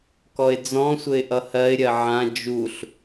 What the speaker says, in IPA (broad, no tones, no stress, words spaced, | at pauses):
kɔɪ̯d͡zɔ̃sʷɘɪ̯ ʔʌhɜɪ̯ɾʲɜ ʕã d͡ʒuɬ